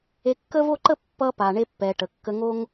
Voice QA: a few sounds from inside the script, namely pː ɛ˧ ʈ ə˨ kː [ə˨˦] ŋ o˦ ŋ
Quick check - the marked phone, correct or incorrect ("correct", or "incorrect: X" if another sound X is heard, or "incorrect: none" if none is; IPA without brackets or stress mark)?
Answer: incorrect: ə˧